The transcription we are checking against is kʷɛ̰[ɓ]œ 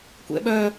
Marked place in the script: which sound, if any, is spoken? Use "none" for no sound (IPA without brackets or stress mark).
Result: ɓ